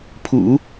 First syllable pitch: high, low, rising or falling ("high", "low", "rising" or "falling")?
low